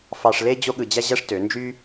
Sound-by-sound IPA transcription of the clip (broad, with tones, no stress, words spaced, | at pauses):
fɑ˧ʂle˦ d͡ʑo˦ɠɯ˧d͡ʑæ˦ʑæ˦ʂ tø˨˦ nd͡ʒy˦